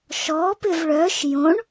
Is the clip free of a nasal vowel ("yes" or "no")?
no